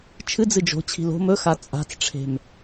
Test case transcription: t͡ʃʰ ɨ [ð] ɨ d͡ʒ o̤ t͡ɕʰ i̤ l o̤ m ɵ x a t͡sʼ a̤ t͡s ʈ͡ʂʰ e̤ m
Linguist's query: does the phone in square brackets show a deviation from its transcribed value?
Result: yes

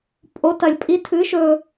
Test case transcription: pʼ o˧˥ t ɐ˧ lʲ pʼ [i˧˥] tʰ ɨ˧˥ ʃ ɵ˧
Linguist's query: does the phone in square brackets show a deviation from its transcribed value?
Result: no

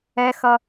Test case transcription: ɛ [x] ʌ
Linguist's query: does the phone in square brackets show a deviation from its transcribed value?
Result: no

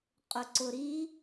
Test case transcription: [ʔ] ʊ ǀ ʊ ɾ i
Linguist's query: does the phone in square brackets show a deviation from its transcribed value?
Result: yes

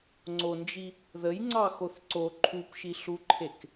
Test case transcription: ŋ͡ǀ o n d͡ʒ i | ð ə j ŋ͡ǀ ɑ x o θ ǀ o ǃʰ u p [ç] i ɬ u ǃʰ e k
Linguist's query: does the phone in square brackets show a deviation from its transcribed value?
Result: yes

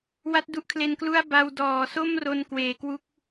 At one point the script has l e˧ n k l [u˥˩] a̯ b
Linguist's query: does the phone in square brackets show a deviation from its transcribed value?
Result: no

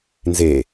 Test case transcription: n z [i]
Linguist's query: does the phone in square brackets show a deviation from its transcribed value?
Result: yes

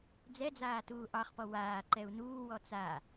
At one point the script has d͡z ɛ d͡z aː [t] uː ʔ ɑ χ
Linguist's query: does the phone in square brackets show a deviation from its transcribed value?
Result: no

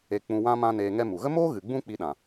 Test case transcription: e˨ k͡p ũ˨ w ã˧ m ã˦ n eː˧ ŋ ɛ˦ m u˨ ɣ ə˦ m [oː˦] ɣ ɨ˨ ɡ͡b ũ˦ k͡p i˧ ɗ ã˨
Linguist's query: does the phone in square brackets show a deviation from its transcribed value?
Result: no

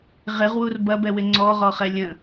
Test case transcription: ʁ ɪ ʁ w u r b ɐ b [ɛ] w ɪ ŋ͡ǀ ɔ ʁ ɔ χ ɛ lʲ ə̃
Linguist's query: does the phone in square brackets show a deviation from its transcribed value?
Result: no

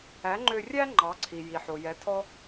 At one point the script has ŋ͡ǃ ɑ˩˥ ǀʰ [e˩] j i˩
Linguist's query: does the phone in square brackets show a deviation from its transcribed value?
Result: yes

